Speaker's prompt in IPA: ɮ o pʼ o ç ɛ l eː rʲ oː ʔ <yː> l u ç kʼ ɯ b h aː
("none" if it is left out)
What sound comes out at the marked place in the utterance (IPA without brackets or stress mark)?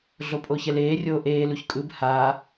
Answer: eː